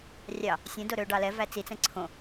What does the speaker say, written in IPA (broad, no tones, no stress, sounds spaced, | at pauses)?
rʲ ɑ | sʲ ɛ̃ d o ɾ ø ɖ ɑ l ɛ v æ t͡s i t͡s ɛ̃ ǀʰ õ